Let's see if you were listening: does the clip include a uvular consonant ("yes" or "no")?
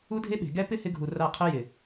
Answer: yes